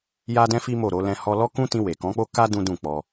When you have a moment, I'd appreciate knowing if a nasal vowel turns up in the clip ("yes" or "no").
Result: yes